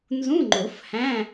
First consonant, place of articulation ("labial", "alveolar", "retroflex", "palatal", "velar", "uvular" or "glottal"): alveolar